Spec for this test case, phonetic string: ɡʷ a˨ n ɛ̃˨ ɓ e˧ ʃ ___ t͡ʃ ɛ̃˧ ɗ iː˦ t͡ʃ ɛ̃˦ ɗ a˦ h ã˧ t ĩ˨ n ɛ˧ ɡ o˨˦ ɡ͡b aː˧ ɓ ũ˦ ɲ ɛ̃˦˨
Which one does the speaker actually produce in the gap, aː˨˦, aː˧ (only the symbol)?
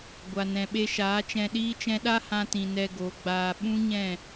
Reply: aː˨˦